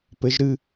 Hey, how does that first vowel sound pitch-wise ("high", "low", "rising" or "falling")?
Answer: rising